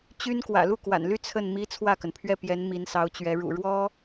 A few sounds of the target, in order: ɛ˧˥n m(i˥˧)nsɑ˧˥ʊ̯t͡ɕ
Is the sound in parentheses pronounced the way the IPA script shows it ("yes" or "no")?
no